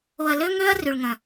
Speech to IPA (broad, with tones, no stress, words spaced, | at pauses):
o˧ɐ̯lø˦ ŋø˦ɐ̯ ry˨ɭŋɐ̃˨